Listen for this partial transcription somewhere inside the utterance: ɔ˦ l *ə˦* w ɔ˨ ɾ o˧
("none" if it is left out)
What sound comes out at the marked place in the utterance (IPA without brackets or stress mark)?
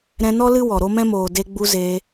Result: ɨ˦